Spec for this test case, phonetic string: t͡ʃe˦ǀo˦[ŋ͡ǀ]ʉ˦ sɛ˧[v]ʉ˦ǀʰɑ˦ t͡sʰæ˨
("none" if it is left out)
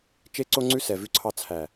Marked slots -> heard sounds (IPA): ŋ͡ǀ, v

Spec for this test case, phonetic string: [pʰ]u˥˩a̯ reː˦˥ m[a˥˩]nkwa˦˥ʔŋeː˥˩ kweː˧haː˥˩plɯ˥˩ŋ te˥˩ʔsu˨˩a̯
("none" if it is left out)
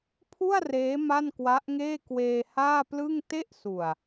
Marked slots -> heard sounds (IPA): pʰ, a˥˩

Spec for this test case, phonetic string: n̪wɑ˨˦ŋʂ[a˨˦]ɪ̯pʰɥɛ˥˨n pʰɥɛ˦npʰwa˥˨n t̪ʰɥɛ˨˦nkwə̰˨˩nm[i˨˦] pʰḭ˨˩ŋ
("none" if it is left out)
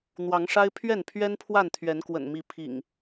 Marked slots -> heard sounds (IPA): a˦, i˨˦

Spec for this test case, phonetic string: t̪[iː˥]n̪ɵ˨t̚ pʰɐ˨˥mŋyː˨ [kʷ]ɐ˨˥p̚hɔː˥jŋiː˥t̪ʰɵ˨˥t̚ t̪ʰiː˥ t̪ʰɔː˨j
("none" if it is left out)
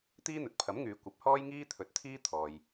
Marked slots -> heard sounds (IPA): iː˥, kʷ

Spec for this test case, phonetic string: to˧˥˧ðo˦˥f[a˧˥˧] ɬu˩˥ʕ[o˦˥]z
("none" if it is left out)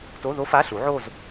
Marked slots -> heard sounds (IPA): a˧˥˧, o˥˧

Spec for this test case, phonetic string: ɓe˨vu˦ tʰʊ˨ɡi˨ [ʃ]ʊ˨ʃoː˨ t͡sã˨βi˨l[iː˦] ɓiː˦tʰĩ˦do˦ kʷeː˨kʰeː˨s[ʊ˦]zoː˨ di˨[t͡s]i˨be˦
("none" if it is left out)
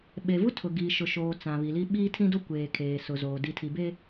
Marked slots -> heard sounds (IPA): ʃ, i˦, ʊ˨, tʰ

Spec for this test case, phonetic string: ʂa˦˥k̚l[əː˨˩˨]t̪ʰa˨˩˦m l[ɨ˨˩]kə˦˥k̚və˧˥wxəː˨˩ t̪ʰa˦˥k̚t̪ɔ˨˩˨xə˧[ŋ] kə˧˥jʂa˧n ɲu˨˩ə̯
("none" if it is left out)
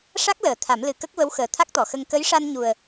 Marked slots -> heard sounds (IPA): əː˨˩˨, ɨ˨˩, ŋ

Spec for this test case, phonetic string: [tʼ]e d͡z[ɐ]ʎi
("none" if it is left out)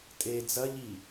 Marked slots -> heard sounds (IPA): tʼ, ɐ

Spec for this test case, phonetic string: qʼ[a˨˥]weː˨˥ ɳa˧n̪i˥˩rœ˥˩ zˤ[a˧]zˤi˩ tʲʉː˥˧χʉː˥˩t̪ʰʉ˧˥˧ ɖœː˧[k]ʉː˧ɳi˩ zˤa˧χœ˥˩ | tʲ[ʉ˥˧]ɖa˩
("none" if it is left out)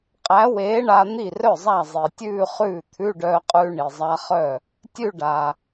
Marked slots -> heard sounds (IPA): æ˨˥, a˥˩, qʼ, ʉ˥˧

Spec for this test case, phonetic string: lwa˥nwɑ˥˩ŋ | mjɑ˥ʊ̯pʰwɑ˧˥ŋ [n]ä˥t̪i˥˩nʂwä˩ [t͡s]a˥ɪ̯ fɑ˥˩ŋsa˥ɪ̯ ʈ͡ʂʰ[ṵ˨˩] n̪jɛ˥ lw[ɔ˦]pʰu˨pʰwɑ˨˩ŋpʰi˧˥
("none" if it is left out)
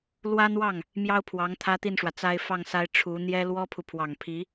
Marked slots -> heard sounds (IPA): t̪ʰ, t͡s, u˧˥, ɔ˥

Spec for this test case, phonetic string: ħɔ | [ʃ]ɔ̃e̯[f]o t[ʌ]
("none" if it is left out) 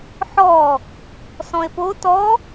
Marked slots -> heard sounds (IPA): s, p, ɔ

